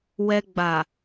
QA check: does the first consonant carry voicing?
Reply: yes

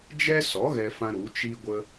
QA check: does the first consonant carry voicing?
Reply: yes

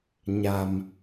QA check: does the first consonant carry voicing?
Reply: yes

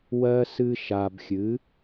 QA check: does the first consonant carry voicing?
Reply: yes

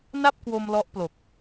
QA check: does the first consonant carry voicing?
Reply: yes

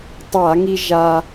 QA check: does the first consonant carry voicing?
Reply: no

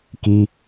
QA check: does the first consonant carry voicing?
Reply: no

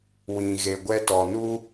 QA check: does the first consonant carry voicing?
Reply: yes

